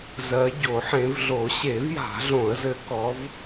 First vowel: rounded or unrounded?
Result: unrounded